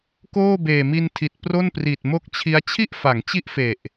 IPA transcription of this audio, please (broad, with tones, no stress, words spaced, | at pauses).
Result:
koː˥˩ beː˨˩mi˧ntʰi˨˩t̚ pro˥˩npri˨˩t̚ mo˥˩k̚t͡ɕʰi˦˥a̯ t͡ɕʰi˥˩ʔfa˩˦ŋt͡ɕi˦˥ʔ fe˨˩ʔ